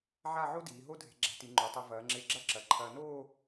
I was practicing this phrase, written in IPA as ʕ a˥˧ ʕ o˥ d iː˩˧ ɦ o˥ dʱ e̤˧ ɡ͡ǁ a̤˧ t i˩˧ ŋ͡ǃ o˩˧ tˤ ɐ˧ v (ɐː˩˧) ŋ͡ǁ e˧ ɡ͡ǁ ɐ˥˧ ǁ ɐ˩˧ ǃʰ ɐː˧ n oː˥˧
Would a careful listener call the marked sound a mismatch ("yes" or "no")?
no